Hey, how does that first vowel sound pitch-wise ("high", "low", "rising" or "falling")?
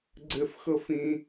high